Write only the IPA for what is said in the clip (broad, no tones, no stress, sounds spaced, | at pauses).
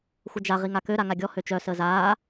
xʷ ə d͡ʒ a ʁ i ŋ a k ø ɾ a ŋ a ɡʲ ɔ h ø t͡ʃ œ s əː z aː